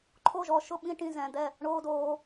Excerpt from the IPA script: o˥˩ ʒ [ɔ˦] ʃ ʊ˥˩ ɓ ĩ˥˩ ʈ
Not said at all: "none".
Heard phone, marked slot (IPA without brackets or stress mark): ɔ˨˦